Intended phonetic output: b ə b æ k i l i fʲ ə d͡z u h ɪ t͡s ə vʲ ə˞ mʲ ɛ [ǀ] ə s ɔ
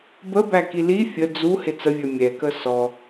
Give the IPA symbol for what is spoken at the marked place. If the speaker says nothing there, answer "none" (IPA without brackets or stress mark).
k